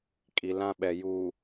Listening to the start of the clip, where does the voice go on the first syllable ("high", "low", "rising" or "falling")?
low